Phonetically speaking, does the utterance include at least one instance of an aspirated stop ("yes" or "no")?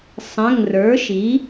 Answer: no